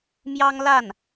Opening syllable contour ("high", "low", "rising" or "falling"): high